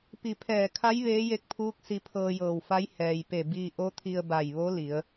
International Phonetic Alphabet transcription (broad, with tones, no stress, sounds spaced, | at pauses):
p i˧˩ pʰ ɛː˧˩ kʰ a˧˥ j ʋ eː˧˥ j e˧˥ k̚ pʰ uː˧˥ k̚ s i˧ pʰ ɤː˧ j ɤː˧˩ w f a˧˥ j h ɛː˩ j p e˧˩ b iː˧ ʔ o˧˥ t̪ʰ i˧ ə̯ b a˧˩ j ʋ o˧˥ l i˩˧ ə̯